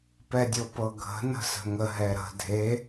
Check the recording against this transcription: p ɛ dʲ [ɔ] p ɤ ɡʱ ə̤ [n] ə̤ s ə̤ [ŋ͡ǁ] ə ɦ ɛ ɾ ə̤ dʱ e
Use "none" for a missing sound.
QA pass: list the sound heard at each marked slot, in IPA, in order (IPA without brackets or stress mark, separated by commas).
ɤ, n, ŋ